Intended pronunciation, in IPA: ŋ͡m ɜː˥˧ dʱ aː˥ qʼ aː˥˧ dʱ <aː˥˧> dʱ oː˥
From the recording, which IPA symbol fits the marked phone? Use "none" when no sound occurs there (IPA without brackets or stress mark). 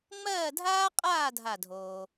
a˥˧